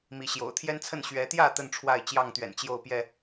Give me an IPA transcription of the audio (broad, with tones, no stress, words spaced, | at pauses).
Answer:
mi˨˦ɕjo̰˨˩ʊ̯ t̪ʰjɛ˦nt͡sʰə˥˨n ɕɥɛ˨˦t̪jä˥˨ t̪ə˥˨nʈ͡ʂʰwa˥˨ɪ̯ t͡ɕjɑ˥˨ŋt̪ɥɛ̰˨˩n t͡ɕjo˥˨ʊ̯pjɛ˥˨